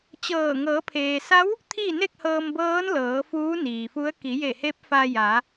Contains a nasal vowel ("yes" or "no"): no